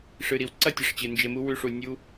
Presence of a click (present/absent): present